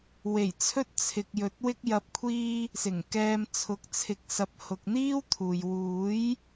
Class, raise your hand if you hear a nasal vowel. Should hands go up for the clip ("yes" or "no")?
no